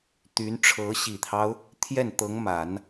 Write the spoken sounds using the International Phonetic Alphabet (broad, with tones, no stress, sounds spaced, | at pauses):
t̪ y˧˥ n ʈ͡ʂʰ ɤ˧˥ ɕ i˨˩ t̪ʰ ɑ˦ ʊ̯ | t̪ʰ j ɛ˥˩ n t̪ ɤ˧˥ ŋ m a˨˩˦ n